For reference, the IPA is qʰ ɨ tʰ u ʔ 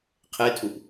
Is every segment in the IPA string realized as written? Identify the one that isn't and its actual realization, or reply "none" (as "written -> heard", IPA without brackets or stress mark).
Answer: ɨ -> e